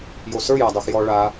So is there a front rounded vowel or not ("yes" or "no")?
no